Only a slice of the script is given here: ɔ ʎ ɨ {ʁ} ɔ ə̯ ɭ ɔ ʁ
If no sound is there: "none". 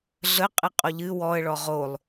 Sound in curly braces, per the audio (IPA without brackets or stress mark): w